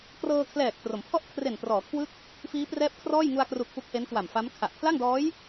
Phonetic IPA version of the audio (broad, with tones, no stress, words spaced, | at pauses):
krɤː˧kʰlɛː˨˩k̚tro˩˦mpʰɔ˥˩ʔ kʰre˨˩nprɔː˩˦kʰwɯ˦˥k̚ | fiː˦˥prɛː˦˥p̚kʰrɔː˥˩jŋu˧a̯ kru˨˩k̚ pu˦˥k̚he˦˥nkwa˨˩m fa˦˥m kʰa˨˩ʔ pʰla˥˩ŋdɔː˦˥j